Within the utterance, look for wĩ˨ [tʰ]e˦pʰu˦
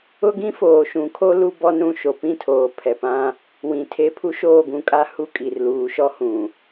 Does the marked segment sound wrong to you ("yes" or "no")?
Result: no